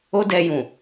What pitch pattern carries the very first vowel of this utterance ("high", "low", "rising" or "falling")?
high